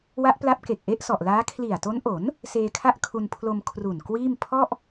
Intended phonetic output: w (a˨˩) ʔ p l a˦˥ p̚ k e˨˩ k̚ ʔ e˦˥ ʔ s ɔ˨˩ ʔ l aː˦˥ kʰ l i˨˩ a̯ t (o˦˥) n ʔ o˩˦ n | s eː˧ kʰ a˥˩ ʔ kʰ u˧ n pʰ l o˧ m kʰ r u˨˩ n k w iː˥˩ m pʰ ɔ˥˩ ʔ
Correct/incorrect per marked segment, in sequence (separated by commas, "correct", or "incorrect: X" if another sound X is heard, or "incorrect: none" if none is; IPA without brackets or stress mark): incorrect: a˦˥, correct